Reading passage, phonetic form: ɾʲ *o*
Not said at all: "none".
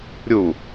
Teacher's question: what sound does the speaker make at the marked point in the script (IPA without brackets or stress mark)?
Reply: u